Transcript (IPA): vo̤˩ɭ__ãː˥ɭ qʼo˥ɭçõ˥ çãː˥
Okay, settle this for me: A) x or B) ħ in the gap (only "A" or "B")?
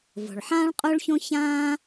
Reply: B